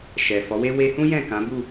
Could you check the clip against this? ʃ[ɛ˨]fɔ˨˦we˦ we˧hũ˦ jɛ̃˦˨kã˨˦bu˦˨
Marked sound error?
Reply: no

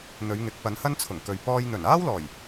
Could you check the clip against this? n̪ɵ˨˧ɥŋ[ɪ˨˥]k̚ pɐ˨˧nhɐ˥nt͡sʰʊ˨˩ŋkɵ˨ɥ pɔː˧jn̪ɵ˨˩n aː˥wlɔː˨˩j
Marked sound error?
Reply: no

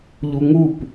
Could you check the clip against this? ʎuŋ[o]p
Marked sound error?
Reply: yes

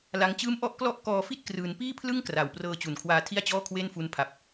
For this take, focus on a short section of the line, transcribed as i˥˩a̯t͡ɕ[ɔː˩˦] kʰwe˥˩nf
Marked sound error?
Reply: yes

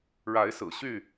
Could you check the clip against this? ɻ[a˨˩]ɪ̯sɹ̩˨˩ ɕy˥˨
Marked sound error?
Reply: yes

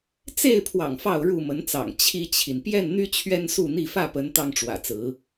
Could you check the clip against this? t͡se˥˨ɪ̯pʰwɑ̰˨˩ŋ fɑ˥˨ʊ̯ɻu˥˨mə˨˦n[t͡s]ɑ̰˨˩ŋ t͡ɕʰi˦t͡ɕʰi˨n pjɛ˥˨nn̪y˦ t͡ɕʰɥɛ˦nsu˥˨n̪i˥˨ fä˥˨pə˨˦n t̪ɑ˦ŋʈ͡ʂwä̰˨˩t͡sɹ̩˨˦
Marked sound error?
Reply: no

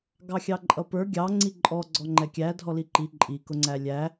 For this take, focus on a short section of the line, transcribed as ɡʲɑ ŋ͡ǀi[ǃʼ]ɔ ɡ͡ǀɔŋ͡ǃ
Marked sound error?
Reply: no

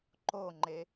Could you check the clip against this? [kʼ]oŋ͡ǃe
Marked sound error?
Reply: yes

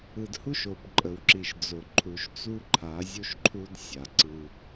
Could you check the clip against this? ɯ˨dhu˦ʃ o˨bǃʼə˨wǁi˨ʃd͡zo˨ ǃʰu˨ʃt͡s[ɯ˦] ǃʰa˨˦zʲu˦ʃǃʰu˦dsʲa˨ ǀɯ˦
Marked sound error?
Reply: yes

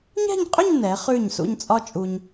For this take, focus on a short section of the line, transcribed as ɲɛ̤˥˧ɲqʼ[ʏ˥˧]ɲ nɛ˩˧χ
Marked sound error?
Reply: no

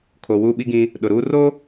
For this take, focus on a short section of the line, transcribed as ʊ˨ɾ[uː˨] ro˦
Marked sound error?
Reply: yes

